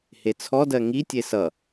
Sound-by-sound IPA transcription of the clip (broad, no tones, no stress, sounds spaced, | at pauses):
h e t͡sʰ ɔ d ɜ ŋ i tʲ e s ʌ